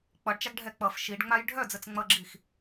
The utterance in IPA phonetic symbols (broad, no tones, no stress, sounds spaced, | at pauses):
k͡p ʌ ɖ t͡ʃ a ɡ ɖʱ ɛ k͡p ʌ f ʃ i ɖ ŋ͡m a j ɖʱ œ d͡z ə t͡s ŋ͡m ʌ ɡ͡ǁ i x